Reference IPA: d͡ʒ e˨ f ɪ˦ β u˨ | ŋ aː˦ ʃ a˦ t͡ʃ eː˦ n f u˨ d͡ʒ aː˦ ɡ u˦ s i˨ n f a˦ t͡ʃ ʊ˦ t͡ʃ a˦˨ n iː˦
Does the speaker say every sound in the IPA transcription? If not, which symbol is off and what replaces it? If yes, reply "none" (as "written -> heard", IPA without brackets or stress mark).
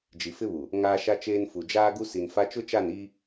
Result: e˨ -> i˨